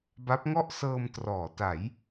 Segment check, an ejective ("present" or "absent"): absent